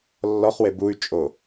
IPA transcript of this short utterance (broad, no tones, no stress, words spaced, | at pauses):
lːɔχwe buy̯t͡ʃʼo